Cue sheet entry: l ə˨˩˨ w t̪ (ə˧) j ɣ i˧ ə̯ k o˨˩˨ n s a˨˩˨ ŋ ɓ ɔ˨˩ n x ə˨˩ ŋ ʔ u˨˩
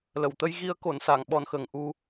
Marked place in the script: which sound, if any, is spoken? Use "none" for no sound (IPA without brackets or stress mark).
ə˧